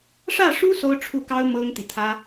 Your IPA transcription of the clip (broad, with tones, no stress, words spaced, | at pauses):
ʂä˥˩ʂu˥ so˥ʊ̯ʈ͡ʂʰu˥˩kɑ˥ʊ̯ mɤ˥ŋt̪i˨t̪ʰä˥